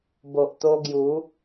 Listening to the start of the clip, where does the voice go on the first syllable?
low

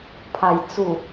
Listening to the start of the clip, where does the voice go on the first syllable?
low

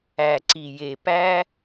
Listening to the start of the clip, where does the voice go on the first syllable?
low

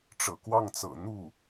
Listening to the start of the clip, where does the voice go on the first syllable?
low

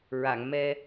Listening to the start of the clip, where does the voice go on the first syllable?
low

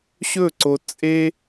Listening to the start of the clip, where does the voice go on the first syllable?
falling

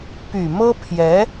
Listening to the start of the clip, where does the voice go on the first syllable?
low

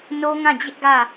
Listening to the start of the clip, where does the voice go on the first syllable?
high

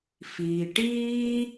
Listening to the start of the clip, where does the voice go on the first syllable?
low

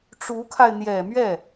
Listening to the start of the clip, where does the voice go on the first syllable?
rising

